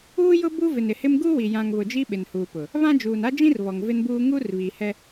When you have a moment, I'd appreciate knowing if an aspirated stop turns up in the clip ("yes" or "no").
no